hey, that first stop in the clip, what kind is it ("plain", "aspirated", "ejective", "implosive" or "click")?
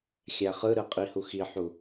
ejective